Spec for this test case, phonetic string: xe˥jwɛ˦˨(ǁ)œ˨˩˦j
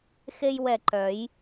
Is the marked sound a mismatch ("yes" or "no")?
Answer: yes